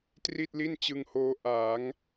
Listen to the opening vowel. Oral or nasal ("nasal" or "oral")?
oral